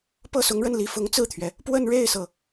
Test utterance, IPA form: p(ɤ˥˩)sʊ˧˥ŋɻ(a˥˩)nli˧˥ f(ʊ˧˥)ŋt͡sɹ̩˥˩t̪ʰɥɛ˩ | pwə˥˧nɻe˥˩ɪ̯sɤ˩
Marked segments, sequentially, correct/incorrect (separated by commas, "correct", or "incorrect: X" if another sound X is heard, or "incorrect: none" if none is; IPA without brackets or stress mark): correct, incorrect: ə˥˩, correct